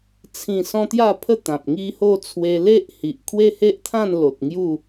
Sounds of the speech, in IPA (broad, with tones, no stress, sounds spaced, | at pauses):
t͡sʰ ĩ˥˧ s ɔ̃˦ t̪ j a˥˧ pʰ ə˥˧ t̪ ã˨ p̚ ŋ i˦ h o˥˧ t͡sʰ w e˧ l e˦ ʔ h i˨ ʔ kʰ w e˦ h e˦ ʔ t̪ʰ ã˥˧ n l o˨ t̚ ŋ j u˥˧